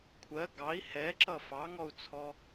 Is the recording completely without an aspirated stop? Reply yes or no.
no